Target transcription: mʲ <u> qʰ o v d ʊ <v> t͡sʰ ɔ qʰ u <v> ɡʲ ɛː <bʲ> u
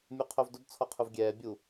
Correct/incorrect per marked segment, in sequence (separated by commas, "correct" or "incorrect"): correct, incorrect, correct, correct